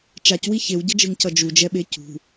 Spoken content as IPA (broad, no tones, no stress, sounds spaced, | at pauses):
t͡ʃ a c w i ç e w ɟ ʌ d͡ʒ ɯ ŋ c ʌ d͡ʒ u d͡ʒ ɛ ɓ e c ṳ